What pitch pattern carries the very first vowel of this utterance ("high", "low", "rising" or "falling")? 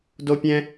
high